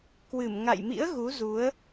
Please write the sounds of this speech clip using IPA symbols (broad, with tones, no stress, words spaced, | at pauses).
kwɨ˧˩m ŋa̰˧˨jmḭ˧˥ə̯ ɣu˨˦zu˨˦ə̯